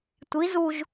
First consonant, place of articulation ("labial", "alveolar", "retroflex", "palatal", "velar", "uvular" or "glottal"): alveolar